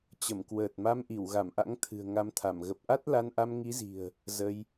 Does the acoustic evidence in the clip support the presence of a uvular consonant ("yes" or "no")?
no